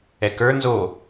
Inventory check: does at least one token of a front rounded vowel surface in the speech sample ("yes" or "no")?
no